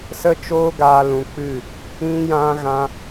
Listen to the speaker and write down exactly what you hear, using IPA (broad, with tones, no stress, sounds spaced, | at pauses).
s ə˦ t͡ʃ oː˦ ɡ aː˧ l ũ˧ k͡p ɨ˦˨ | ĩ˦ j ã˦ ɣ ã˦